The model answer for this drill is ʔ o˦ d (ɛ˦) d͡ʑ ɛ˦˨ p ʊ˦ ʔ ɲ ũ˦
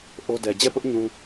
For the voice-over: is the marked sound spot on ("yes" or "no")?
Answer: no